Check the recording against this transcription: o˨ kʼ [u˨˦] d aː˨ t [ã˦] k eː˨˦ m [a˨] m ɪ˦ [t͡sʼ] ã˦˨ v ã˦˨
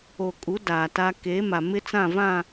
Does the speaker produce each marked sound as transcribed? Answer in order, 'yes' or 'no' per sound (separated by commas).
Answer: yes, no, yes, no